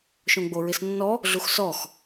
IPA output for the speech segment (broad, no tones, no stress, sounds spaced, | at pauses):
ʃ õ ɡ͡b o ɹ ɪ s nː ɔ | ɮ u x s ɔ x